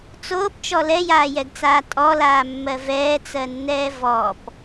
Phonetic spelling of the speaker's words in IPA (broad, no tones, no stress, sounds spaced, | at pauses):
t͡s oː p t͡ʃ ɔ l ɛ j aː j ɛ ɡ t͡s aː tʼ ɔ l aː mː ɜ v ɛː t͡s ɜ nː ɛː v ɔ p